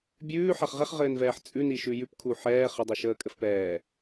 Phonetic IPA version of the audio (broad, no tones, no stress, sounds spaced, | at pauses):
bʲ ʉː ħ a χ ʁ ɛ χ ʁ ɘː n v ɛː ħ t͡sʼ ʉ n i ʃ ʉ j ʉ p kʰ u ħ ɛː χ ɘ dˤ i ʃ əː kʼ ɘ f p ɛː